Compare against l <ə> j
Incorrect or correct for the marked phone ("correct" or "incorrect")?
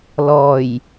incorrect